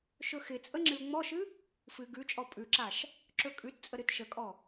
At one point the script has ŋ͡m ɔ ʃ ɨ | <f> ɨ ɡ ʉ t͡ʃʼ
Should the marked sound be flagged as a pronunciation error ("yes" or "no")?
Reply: no